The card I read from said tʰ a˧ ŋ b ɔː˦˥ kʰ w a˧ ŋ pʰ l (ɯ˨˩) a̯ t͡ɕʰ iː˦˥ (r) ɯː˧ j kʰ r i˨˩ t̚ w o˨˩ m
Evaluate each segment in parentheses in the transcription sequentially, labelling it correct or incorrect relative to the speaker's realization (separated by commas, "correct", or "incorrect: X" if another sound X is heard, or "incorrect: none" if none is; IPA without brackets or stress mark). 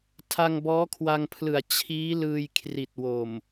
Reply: correct, incorrect: l